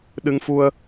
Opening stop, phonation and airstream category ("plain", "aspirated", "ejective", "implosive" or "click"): implosive